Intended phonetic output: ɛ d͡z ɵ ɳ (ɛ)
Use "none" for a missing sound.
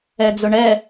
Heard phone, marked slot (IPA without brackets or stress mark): ɛ